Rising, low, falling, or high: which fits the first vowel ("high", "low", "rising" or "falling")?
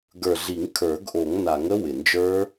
low